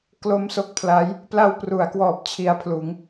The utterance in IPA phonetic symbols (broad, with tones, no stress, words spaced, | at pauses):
klo˦˥m so˦˥k̚pʰla˦˥j | pla˧wpru˩˦a̯kwɔː˨˩p̚ t͡ɕʰi˧a̯pʰluː˩˦ŋ